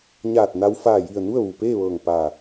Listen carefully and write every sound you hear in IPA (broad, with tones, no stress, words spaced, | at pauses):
ɲaː˧˩t̚na˧w faː˧˩ji˧˩ə̯ nu˥˨ə̯ʋu˩peː˥˨ʋɤː˧˩ŋ pa˧˩